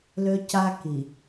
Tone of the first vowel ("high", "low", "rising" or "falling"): high